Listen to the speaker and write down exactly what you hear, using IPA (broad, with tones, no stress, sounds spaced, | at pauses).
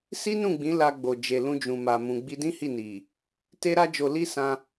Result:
s i˦ n ũ˦˨ ɡ͡b ĩ˨˦ l a˧ ɡ͡b o˨ d͡ʒ e˨ l ũ˧ d͡ʒ ũ˨ m a˨ m ũ˨ ɡ͡b i˧ d ĩ˦ h i˦˨ n i˨ | t e˦ ɾ a˦ d͡ʒ o˧ l i˦ s ã˧